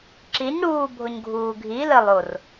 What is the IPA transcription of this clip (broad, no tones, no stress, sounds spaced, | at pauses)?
ǁ i ɲ ɽ uː bʱ o ɲ ɡʱ uː ɡʱ i l ə lˠ o r